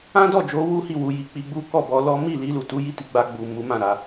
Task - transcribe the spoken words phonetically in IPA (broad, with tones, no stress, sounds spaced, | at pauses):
ã˦ d ɔ˦˨ d͡ʒ o˨˦ w u˦ h i˦˨ w u˧ j i˧ k͡p i˦ ɡ͡b u˦ k ɔ˦˨ b ɔ˧ l ɔ˦ m i˦˨ l i˧ l u˨ t u˨˦ j i˦˨ t i˨˦ ɡ͡b a˧ ɡ͡b u˨ m u˨˦ m ã˦˨ ɾ a˨˦